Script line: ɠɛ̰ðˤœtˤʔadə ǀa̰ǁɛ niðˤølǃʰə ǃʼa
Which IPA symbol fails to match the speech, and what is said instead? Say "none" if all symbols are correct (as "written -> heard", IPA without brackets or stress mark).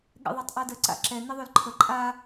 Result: none